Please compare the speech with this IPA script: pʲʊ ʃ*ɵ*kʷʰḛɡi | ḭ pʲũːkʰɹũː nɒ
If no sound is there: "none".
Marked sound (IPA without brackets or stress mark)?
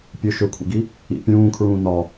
ɵ